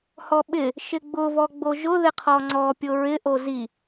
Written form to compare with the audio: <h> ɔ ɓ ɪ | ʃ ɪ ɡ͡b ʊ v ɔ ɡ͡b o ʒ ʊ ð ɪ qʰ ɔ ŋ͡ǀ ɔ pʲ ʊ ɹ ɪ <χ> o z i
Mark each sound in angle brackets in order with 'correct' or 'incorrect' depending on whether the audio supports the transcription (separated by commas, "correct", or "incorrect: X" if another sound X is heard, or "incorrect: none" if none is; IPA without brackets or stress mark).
correct, incorrect: ʔ